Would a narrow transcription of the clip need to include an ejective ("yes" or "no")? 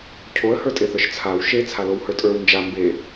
yes